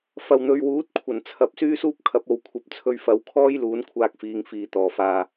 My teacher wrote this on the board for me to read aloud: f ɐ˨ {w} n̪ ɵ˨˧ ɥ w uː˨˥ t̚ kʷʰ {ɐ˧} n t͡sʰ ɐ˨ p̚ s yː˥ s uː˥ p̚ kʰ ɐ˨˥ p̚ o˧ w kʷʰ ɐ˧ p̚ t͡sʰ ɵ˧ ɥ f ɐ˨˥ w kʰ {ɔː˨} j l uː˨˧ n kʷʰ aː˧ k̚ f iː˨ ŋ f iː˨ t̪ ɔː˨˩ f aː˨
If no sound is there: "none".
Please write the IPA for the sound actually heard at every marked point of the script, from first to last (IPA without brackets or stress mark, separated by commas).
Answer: w, ɐ˨˩, ɔː˥